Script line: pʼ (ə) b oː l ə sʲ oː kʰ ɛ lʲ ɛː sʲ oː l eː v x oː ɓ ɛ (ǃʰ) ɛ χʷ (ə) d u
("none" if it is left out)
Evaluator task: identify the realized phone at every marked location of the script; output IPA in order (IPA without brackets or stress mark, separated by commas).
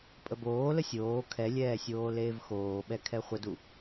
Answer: ə, kʰ, ə